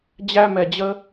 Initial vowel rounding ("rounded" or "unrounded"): unrounded